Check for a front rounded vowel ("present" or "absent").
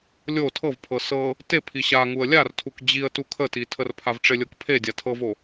absent